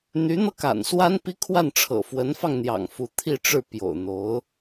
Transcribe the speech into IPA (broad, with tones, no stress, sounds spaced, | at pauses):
n̪ y˧˥ n̪ ɤ˧ k a̰˨˩ n s w a˥ n p i˥ kʰ w a˥˩ n ʈ͡ʂʰ ɤ̰˨˩ f w ə˧˥ n f ɑ˧ ŋ n̪ j ɑ̰˨˩ ŋ f u˧˥ t̪ʰ i˥˧ ʈ͡ʂ ɻ̩˥˩ p j o̰˨˩ ʊ̯ n̪ o˧˥ ʊ̯